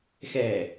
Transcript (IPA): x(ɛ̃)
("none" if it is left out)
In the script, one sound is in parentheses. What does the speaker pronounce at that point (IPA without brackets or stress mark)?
ɛ